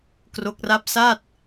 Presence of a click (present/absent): absent